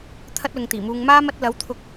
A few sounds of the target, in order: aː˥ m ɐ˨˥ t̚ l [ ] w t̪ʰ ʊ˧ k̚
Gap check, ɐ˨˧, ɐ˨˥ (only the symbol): ɐ˨˥